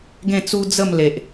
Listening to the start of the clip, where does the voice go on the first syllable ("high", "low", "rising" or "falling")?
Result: falling